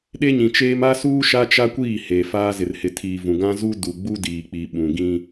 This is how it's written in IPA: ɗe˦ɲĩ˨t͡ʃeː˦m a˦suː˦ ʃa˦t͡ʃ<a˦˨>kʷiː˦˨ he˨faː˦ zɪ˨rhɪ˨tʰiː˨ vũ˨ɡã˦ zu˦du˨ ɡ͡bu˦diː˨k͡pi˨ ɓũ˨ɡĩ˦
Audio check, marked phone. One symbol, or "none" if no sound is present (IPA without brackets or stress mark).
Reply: a˦